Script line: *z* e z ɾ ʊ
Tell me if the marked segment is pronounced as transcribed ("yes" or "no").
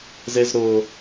yes